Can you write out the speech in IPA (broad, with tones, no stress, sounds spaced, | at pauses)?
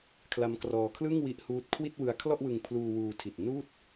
kʰ l a˦˥ m k r ɔː˧ kʰ l ɯ˥˩ ŋ w i˦˥ ʔ h uː˦˥ t̚ kʰ w i˥˩ t̚ w ɯ˧ a̯ kʰ l ɔ˥˩ ʔ w ɯ˧ ŋ pʰ l uː˧ w uː˧ tʰ i˨˩ t̚ n uː˥˩ t̚